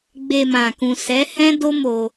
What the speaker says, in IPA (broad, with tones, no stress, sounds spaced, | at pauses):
ɡ͡b e˧ m ã˨ k ũ˨ s ɛ˨˦ h ɛ̃˦ d o˦ m o˧